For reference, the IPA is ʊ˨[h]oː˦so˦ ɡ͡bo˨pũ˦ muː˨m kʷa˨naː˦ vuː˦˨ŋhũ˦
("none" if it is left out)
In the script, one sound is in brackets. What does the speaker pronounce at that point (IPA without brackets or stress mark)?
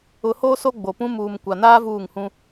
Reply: h